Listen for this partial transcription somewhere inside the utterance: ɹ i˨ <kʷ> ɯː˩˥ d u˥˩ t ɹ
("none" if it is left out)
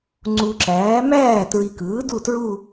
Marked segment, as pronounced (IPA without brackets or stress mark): k